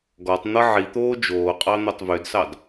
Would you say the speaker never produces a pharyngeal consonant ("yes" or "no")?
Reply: no